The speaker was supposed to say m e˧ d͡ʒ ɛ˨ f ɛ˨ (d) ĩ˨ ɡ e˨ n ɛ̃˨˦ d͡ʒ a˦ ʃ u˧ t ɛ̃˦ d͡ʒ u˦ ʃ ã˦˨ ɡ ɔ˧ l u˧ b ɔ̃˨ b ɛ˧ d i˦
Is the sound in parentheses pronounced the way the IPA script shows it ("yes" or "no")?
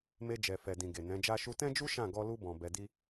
yes